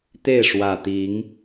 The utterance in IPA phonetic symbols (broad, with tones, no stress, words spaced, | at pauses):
t̪e˥˨ɪ̯ʂwä˨˩t̪i˨˦ŋ